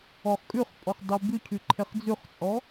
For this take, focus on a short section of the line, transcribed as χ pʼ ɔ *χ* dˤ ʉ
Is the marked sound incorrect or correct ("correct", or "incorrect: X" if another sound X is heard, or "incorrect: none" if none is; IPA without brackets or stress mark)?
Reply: correct